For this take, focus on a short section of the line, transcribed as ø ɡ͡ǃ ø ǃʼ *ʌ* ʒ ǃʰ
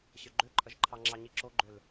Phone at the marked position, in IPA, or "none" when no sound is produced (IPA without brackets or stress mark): ʌ